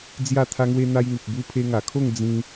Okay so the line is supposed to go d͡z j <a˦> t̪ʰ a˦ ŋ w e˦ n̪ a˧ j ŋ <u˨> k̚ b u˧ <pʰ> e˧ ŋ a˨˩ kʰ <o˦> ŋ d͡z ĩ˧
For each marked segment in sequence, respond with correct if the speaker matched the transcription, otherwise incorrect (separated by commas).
incorrect, correct, correct, incorrect